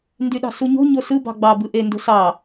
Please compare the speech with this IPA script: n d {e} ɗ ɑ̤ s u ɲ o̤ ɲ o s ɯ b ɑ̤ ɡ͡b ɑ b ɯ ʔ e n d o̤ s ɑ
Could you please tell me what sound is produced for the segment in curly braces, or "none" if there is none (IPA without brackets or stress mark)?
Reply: y